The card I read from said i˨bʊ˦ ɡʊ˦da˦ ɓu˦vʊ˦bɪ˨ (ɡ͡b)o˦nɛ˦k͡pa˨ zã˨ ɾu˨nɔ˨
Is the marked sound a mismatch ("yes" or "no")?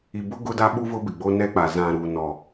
no